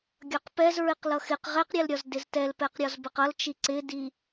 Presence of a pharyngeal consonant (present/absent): absent